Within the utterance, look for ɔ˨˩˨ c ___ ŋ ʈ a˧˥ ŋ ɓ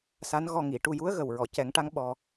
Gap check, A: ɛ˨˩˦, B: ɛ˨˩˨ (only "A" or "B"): A